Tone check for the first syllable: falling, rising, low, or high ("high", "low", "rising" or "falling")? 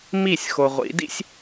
falling